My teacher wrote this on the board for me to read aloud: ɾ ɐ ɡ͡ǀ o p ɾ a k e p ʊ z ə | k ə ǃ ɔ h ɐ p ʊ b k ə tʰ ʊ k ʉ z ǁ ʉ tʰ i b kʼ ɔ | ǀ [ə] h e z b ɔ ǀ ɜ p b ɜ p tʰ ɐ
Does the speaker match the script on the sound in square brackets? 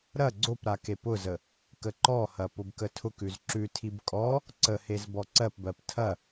yes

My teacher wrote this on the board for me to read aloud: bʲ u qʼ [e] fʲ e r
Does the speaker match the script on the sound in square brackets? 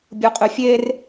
no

